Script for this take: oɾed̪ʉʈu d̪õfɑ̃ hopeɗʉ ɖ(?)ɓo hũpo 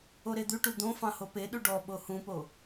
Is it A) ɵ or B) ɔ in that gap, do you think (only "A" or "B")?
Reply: B